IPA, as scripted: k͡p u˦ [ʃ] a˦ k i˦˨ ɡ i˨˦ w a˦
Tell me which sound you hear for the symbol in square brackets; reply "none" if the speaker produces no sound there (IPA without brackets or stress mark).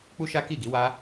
ʃ